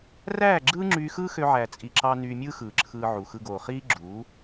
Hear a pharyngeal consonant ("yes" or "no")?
yes